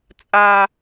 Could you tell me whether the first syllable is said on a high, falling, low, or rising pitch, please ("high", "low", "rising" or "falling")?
high